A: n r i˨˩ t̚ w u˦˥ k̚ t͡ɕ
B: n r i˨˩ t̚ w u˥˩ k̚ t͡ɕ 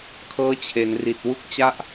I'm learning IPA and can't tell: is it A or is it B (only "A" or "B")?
A